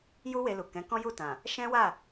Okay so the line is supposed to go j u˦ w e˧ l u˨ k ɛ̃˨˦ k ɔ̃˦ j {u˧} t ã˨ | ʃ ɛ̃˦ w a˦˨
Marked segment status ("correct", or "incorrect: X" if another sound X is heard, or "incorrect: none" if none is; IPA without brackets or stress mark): incorrect: u˦˨